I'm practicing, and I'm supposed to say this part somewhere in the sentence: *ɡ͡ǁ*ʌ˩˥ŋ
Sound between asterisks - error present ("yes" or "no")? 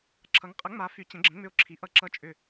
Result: yes